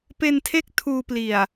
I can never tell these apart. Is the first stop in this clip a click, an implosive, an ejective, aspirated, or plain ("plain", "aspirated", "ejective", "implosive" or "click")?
plain